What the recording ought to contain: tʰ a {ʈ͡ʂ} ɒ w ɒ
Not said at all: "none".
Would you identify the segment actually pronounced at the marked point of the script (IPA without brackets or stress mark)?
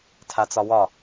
t͡s